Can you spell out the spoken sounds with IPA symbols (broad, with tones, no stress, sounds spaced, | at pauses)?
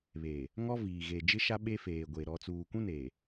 β eː˨ | ŋ ɔ˦ v iː˨ ɣ e˨ d͡ʒ ɪ˦ ʃ a˦ ɓ e˦ f eː˨ ɡʷ e˨ ɾ ɔ˨ t͡s uː˨ kʷ ũ˦ n eː˨